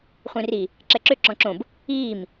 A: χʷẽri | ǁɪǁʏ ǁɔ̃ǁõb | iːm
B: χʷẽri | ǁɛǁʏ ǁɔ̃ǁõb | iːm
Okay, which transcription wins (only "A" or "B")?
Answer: B